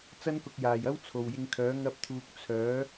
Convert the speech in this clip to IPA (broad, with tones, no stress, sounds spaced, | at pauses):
t͡s ɐ˥ n k ʊ˧ k̚ j aː˨ j ɐ˥ w t͡sʰ o˨ w j ɪ˧ ŋ kʰ œː˨˥ ŋ ɐ˥ p̚ t̪ʰ uː˧ k̚ t͡sʰ œː˨˥